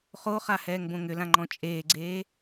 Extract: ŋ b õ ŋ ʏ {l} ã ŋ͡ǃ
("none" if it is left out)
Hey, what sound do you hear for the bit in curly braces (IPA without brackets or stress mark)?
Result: l